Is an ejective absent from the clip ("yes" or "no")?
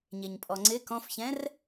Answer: no